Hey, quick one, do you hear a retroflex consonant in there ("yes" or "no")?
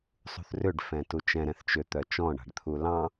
yes